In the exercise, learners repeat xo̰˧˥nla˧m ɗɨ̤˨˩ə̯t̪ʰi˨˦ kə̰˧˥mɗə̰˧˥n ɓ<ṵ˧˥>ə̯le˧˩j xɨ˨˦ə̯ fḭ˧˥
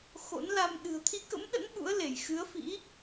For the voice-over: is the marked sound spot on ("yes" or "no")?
yes